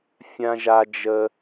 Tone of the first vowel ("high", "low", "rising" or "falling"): high